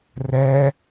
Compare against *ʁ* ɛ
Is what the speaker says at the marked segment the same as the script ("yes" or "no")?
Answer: no